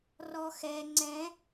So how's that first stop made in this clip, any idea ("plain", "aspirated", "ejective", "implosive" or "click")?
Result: click